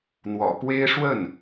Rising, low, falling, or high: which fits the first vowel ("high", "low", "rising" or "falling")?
low